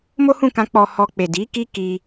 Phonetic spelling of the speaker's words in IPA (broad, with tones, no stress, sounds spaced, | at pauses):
m o˦ h ũ˦˨ k ã˧ k͡p ɔ˧ h ɔ˧ k͡p e˨ d i˨˦ k i˦ k i˧